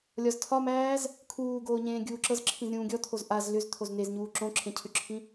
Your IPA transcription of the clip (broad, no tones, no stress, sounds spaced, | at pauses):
lʲ ɒ z tʰ ɒ m æː z | kʰ uː ɡ oː ɲ ẽː ɡʲ uː ǁ ɤ z ǁʰ ĩ z ɾʲ ũː ɡʲ ɔ t̪ʰ o z ʔ a z l ʏ z t̪ʰ o z n e z ɲ uː ǁ õ ǁʰ ẽ cʰ ʏ ǁʰ ĩ